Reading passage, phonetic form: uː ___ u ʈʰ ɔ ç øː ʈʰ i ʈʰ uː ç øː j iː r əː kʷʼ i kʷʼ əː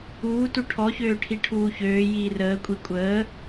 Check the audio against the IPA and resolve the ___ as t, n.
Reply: t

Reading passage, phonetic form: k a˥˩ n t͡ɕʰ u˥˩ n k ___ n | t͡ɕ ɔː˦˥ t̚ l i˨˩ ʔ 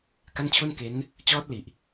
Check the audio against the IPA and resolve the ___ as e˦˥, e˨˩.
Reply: e˦˥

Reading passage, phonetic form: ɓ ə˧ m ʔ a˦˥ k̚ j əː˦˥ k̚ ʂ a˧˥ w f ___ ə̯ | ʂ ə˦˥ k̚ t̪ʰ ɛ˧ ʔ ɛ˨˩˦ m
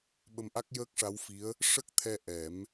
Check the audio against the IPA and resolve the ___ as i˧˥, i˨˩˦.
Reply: i˧˥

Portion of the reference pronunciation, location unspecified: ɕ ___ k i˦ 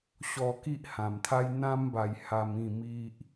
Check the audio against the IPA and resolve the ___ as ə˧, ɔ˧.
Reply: ɔ˧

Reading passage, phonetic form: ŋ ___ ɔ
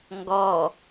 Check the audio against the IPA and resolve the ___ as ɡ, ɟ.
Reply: ɡ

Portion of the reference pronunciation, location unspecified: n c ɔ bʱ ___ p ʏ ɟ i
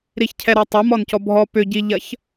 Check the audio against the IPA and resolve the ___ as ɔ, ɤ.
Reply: ɔ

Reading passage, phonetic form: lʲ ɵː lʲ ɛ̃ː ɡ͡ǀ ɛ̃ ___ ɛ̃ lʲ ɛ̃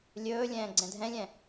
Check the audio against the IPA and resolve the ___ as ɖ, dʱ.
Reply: dʱ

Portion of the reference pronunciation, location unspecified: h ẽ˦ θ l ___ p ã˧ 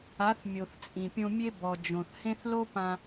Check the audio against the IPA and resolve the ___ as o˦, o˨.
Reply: o˦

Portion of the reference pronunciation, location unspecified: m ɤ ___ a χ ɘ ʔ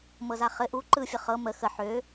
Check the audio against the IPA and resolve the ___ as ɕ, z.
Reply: z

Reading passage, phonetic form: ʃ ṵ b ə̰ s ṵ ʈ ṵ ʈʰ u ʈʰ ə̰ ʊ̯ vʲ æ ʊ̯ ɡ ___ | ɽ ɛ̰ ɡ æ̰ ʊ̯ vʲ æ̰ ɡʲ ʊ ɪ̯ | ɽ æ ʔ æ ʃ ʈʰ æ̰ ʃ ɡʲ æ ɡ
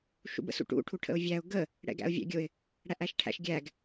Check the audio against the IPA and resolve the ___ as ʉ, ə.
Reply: ə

